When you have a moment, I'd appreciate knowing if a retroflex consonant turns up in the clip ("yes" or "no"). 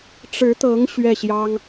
yes